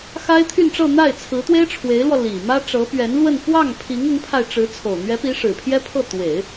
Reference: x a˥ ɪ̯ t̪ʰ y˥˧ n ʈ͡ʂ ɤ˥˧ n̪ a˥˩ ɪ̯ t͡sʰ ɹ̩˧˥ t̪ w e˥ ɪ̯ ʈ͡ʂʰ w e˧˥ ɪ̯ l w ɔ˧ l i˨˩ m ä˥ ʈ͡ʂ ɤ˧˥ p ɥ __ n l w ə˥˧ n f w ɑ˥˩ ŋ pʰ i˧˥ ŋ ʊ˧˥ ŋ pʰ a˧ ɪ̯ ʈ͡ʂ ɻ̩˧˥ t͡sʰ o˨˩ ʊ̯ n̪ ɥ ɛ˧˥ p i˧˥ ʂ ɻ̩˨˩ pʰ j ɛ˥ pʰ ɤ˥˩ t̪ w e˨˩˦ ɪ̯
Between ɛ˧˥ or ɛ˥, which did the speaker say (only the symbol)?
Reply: ɛ˧˥